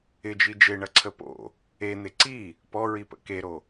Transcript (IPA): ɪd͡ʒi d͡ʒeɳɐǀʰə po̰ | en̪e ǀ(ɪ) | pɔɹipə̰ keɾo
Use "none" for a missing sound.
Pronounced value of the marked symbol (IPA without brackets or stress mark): i